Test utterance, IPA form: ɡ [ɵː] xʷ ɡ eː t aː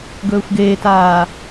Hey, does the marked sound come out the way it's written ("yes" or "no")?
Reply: yes